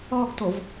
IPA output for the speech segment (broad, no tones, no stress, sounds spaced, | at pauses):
ɔ ɡ t o v